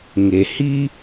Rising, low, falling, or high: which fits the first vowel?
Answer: low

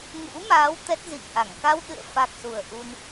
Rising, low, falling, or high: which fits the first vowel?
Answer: rising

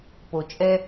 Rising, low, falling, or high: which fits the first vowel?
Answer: low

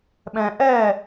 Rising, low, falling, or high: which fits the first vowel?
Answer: low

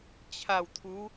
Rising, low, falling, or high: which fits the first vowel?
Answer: low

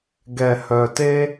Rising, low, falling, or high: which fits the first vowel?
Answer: low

